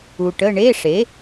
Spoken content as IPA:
u˨ ʈ ə˧˥˧ ɳ e˧˥˧ ʂ e˩˥

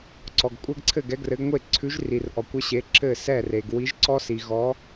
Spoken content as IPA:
ǀ ɔ˩ ɡ kʷʼ ɘ˦˥ ɡ ǀʰ ɘ˥˩ ɡ ɛ˨˥ ɡ r ɘ˨˥ ɡ ŋʷ e˥˩ ǀʰ ʉ˨˥ ʒ r i˩ r ʔ ɔ˩ kʷ ə˦˥ ɕ e˨˥ ǁ ɘ˥˩ s ɛ˥˩ r e˩ ɡ w i˨˥ ʒ ǀ ɔ˦˥ s i˩ ɣ ɔ˨˥

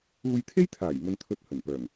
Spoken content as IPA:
uː˧ j t̪ʰ e˥ j t̪ʰ aː˨˩ j m ɵ˧ n t̪ʰ ɵ˧ t̚ h ɵ˨˩ n p œː˨˩ ŋ

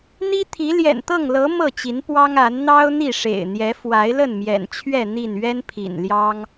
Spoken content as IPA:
n̪ i˦ t̪ʰ i˨˦ l j ɛ̰˨˩ n t̪ ɤ˥˨ ŋ l ɤ˨˦ m ɤ˥˨ t͡ɕ i˨˦ n p w ɑ˦ ŋ a˨˦ n n̪ ɑ˦ ʊ̯ n̪ i˥˨ ʂ ḛ˨˩ ɪ̯ n̪ j ɛ˨˦ f w a˨˦ ɪ̯ l ə˥˨ n m j ɛ̰˨˩ n t͡ɕʰ ɥ ɛ˥˨ n̪ i˥˨ n ɥ ɛ˦ n pʰ ḭ˨˩ n l j ɑ˦ ŋ

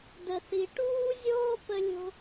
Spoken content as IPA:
d ə˩ θ i˩ ʈ uː˥ zʲ oː˥ p ə˥ lʲ o̤˥

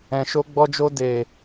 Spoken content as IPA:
ɛ̃˨ ʃ o˧ ɡ͡b ɔ˧ d͡ʒ o˧ d e˨

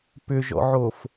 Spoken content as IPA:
p ʏ ʒ ɔ̰ ʕ o f

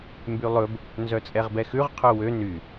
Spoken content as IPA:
m b y lˠ ɵ b | n z œ t͡sʼ ɛ ʁ b ɛ x ʉ ʁ qʰ œ w ø n y

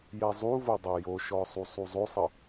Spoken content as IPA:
j ɛ zˤ u v o dˤ ɛ j o ʃ ɔ sˤ u sˤ u zˤ o sˤ ə

